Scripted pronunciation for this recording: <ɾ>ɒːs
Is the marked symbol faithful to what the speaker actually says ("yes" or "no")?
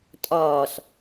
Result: no